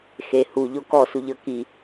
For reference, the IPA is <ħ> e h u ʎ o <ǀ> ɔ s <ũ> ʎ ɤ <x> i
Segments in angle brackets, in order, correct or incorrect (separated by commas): incorrect, incorrect, incorrect, incorrect